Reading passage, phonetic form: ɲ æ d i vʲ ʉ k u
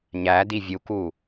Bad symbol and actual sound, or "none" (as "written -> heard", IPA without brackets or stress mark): ʉ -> u